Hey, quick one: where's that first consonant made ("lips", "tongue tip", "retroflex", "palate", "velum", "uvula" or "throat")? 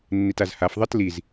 tongue tip